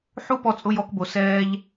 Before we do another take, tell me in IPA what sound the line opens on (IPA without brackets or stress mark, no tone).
ħ